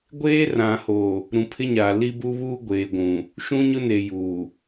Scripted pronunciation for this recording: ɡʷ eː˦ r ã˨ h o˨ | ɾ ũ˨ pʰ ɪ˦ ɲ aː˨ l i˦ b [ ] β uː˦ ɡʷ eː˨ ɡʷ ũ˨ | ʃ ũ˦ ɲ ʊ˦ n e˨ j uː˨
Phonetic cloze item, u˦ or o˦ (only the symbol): u˦